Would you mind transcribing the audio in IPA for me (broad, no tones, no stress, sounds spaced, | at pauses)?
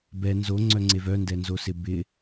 b ɛ n z o ŋ͡ǀ œ ŋ͡ǀ e v œ n d ɛ n z o s ɪ b ɪ